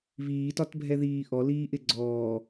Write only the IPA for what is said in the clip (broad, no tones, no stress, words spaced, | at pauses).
βiːtɒtbʱɛðiː ʔɔliːʔɪ ɡ͡ǀɔː